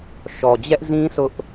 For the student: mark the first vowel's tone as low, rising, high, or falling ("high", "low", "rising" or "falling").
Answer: low